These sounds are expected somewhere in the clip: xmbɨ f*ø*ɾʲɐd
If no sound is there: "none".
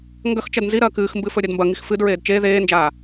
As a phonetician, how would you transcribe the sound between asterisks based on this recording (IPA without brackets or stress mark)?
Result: ɵ